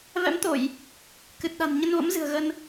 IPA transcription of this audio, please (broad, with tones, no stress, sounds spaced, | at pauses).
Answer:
v ɛ̰˧˥ m t̪ o˧˩˨ j | k ɨ˨˩ t̚ ɗ a̤˨˩ n ɲ ə˧ n v ə̰˧˥ m z ɨ̤˨˩ ə̯ ɣ ə˧ n